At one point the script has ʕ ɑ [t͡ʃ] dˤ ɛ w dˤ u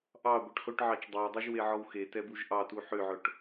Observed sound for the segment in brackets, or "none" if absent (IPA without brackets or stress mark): t͡ʃ